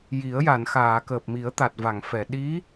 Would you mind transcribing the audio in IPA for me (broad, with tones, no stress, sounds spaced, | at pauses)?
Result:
j i˨˩˦ ə̯ j a˨˩˨ n x aː˨˩˨ k əː˨˩ p̚ m i˨˩˦ ə̯ t̪ a˨˩ t̚ v a˨˩˨ ŋ f ɛ˨˩˨ ɗ i˧˥